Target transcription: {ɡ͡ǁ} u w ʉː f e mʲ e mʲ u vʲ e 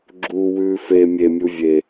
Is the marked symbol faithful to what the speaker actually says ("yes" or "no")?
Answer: yes